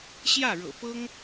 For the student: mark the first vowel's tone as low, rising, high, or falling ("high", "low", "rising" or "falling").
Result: falling